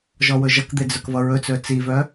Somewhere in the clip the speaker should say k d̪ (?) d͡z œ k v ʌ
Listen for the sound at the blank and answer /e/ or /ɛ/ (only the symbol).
e